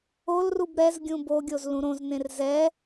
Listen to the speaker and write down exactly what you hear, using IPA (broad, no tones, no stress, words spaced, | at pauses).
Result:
olrub ɾɛz ɡʲũboɡʲoz lũɾõznẽr zɛ